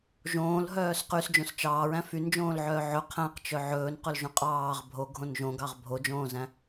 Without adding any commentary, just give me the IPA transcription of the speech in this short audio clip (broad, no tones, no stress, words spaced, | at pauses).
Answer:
ʒõːlɦœːs qysd͡ʒõs t͡ʃɑːɹæ̃ fynd͡ʒõːlʕœː ʕɵ qʰæ̃qt͡ʃœ ʕɵːnqɵlʒõ qʼɑːʁ bʱoɡʱõn ʒõɡɑʁ bʱod͡ʒõːzæ̃